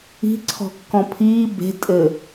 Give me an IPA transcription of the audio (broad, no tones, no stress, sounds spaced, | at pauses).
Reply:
i̤ ǀʰ ɔ̤ kː ɔ̃ pʰ iː b e̤ tʼ ɘ